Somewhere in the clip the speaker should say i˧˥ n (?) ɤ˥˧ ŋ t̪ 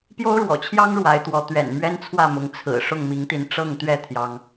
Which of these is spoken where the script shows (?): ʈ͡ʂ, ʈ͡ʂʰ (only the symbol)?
ʈ͡ʂ